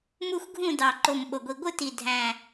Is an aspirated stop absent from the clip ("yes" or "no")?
yes